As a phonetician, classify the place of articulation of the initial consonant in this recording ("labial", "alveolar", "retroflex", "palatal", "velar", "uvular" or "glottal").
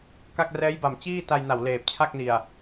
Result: velar